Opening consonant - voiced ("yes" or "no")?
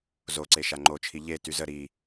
yes